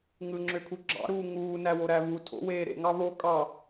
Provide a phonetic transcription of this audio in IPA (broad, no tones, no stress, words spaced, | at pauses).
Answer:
ŋɯŋ͡ǁøkʰu ɡ͡ǁɑ̰ɾuː ŋuːnæwoɾæ βu tʰo̰weː ɾḛŋɑ βo kʼɑ